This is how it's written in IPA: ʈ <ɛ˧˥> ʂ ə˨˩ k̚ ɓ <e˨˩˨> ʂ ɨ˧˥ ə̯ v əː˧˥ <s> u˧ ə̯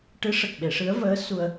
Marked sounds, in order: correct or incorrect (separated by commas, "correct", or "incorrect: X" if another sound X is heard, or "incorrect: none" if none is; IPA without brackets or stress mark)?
incorrect: ɨ˧˥, correct, correct